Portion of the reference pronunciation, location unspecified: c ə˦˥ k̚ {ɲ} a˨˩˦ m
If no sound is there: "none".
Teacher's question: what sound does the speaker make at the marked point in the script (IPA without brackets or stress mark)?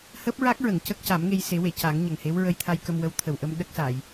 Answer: c